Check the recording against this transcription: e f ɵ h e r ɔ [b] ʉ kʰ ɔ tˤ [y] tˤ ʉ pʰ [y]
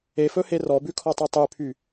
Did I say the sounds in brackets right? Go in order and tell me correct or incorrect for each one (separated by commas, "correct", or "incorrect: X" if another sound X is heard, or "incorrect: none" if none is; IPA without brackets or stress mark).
correct, incorrect: ø, correct